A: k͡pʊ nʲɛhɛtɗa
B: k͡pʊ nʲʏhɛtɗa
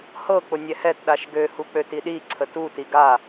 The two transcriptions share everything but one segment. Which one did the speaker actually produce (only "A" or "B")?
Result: A